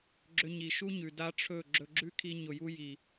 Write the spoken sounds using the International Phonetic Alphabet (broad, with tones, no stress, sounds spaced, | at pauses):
ɡ͡ǁ ʏ˧ ɲ i˨ ʃ u˦ ɲ ʉ˨ d a˦ ʈ͡ʂʰ ɵ˦˨ ɡ͡ǁ ɵ˧ ɡ͡ǁ ʉ˦ kʰ i˧ ɲ ʊ˨ j u˧ j i˨